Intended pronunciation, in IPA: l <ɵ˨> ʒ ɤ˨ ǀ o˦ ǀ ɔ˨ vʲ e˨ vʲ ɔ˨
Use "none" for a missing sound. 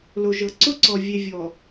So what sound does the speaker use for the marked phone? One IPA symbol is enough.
o˨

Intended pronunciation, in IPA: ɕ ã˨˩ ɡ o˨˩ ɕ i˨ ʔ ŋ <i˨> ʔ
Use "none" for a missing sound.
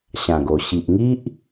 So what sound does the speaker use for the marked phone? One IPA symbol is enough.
i˦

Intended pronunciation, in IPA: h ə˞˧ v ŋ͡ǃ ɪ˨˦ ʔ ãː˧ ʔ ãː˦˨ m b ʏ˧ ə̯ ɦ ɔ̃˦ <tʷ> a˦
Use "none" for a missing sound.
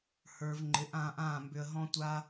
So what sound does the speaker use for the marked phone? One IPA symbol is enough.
tʷ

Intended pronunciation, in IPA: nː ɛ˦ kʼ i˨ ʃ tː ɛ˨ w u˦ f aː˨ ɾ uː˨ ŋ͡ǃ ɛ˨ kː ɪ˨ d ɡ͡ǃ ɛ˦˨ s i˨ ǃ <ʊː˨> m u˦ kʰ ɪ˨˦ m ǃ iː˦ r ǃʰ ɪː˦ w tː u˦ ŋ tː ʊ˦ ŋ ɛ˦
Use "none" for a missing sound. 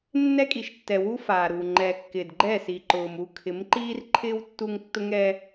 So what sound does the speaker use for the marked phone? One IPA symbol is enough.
ʊː˨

